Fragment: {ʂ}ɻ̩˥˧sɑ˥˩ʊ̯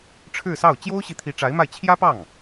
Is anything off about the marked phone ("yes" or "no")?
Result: yes